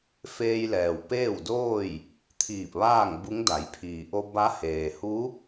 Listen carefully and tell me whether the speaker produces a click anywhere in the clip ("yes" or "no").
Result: no